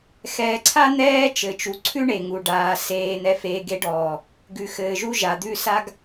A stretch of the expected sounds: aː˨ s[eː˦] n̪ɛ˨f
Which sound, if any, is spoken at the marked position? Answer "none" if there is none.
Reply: eː˨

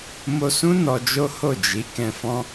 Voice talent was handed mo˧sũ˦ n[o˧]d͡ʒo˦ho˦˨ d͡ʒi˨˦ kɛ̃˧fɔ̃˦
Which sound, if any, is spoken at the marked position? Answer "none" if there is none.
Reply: ɔ˧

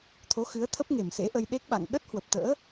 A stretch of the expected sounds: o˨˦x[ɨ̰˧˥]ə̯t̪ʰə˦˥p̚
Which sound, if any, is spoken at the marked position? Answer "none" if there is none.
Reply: ɨ˨˦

